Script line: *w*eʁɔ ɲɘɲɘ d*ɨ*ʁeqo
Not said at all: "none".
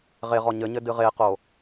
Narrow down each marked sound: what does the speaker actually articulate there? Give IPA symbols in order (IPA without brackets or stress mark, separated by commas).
ʁ, ɨ